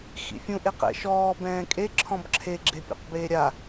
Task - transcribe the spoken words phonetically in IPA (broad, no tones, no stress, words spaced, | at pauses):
xḭfʲũʔ eqɛ̰ʃɔː bɛ̃ːkʼe ǁʰɔ̃bǁʰe ɡ͡ǁepʲɛ̰qbeːɾʲa